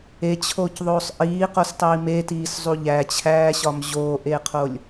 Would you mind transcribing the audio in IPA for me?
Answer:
et͡ɕʰoːcðˤoːsˤ ʔiːqostˤiː metiːszˤu ʎæt͡ɕʰæːɕɒm ʑoːʔeːqʰolʲ

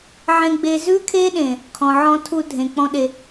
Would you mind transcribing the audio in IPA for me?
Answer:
ʕẽ˨ɡ͡be˨ zʉ˦kʰe˦ɗẽ˨ | kʰɔ̃˨ʕɔ̃˦tʰu˦ dʱẽ˨k͡pɔ̃˦ɗe˦

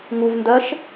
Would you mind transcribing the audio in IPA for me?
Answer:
ŋuvndɜʃ

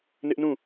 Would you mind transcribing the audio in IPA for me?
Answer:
nɪ˦ʔnũ˦˨

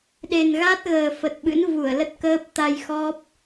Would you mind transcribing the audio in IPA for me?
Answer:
ɗe˨˩nɣa˦˥t̚ ɣəː˨˩fə˨˩t̚ɓɨ̰˧˥n vu˧˩ə̯ lə˦˥t̚kəː˦˥p̚ t̪a˧jxɔ˦˥p̚

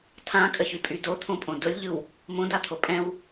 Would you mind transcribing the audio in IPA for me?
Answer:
tʰãkʼəçypʼy dot̪ʰõpʼõ dʊlʲʎɯw | mõdat̪ʰo pʼɛ̃w

